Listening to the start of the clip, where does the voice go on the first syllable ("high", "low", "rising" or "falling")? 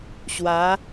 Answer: rising